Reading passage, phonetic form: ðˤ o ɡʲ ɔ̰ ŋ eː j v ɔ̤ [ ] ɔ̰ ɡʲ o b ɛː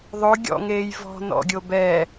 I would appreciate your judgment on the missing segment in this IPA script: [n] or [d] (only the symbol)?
n